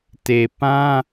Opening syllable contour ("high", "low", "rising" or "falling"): low